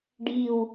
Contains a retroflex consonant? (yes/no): yes